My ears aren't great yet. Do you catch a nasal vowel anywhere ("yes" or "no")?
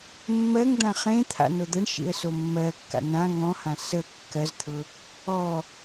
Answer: yes